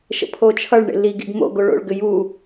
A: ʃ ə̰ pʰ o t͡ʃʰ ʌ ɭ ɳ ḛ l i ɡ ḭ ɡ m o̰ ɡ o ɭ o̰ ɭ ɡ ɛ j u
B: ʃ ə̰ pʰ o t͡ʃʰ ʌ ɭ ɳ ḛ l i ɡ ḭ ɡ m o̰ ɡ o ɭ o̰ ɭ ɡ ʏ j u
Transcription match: B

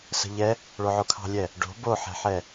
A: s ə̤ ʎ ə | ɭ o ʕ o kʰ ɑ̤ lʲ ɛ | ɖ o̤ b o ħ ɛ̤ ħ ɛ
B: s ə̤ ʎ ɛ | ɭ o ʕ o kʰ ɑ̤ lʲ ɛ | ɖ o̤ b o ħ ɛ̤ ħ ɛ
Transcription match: B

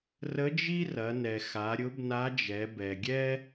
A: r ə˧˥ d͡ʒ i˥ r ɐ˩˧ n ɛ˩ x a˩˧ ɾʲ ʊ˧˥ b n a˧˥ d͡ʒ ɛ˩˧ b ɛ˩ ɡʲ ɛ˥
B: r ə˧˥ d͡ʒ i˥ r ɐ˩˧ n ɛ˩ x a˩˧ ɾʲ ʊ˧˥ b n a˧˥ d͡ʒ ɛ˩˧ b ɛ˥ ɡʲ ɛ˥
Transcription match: A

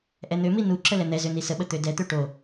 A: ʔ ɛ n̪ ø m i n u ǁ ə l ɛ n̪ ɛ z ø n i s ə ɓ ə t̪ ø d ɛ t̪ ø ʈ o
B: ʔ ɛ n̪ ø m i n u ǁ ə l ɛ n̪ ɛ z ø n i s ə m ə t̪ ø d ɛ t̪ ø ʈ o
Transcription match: A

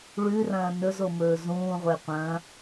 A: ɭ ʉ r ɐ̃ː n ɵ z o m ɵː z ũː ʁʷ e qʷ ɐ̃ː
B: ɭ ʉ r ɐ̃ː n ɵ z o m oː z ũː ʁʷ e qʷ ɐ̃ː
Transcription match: A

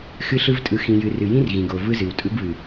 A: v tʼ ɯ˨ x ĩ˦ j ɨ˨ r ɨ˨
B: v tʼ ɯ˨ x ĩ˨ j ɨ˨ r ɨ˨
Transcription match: B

